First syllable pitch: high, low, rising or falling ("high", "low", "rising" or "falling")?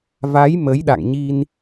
rising